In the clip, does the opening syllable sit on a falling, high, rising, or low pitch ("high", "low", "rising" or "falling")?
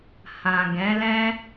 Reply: low